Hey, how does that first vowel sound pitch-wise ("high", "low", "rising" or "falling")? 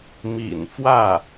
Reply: low